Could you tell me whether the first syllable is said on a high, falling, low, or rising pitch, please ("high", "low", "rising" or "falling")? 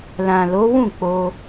low